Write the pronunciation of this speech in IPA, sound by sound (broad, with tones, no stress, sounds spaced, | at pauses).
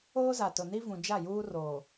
oː˦ z a˨ t ʊ˨ n i˦ v ũ˨ d͡ʒ a˦˨ j uː˦ r oː˨